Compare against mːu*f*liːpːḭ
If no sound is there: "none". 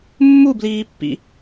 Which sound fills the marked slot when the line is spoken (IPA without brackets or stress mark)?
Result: b